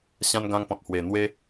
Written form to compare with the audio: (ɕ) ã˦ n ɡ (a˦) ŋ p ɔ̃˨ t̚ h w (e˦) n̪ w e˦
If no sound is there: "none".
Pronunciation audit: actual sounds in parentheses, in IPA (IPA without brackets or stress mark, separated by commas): ɕ, ã˦, e˨˩